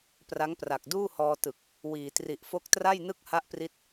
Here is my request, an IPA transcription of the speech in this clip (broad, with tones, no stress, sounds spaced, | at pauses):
p r a˦˥ ŋ p r a˨˩ k̚ d uː˥˩ h ɔː˧ t ɯ˨˩ k̚ | w iː˩˦ t r i˨˩ ʔ f o˦˥ k̚ t r a˥˩ j n ɯ˥˩ k̚ h a˦˥ ʔ p r i˦˥ t̚